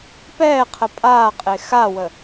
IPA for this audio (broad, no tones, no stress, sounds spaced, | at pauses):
p ɛː qʰ ə pʼ aː qʼ e x a w ə